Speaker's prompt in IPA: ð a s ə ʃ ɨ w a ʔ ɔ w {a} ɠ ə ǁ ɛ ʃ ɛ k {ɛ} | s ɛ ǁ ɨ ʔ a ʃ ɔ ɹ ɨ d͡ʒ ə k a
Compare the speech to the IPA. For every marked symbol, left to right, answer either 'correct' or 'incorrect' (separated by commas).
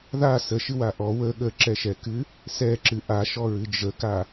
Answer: incorrect, incorrect